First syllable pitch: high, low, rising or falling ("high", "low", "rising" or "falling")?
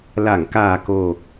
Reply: low